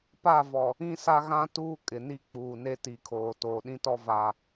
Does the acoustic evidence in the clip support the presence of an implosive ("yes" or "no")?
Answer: yes